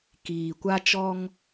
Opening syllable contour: low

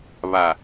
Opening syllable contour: low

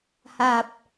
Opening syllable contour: low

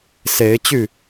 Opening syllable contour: rising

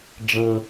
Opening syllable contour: high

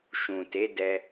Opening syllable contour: low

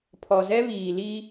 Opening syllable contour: low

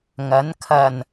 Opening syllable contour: rising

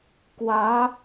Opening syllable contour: rising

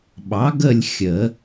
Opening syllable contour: rising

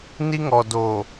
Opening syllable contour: high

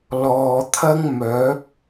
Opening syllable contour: low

